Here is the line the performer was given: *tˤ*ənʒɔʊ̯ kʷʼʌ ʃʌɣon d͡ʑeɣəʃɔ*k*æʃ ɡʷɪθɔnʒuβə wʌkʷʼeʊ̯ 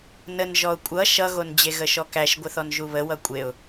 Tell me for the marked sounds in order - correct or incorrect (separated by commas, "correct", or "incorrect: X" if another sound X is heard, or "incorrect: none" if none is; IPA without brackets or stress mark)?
incorrect: n, correct